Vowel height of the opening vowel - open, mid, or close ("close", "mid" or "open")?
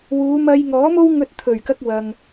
close